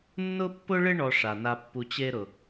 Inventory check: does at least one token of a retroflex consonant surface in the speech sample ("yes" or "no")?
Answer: yes